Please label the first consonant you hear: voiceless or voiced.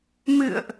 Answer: voiced